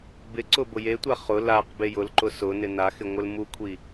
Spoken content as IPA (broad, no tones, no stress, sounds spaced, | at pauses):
b ɪ ǀ ʊ b ʊ j e tʷ a χ ʊ l a q b e j ʊ l ǃ ʊ s ʊ n ɪ n a x ɪ ŋʷ ɪ l m u kʷʰ i